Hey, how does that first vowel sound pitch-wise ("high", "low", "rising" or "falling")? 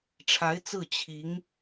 rising